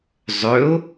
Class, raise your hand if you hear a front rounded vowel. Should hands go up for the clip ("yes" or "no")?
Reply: yes